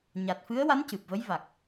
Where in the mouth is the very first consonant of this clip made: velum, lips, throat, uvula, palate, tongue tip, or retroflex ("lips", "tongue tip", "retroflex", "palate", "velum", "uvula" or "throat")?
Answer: palate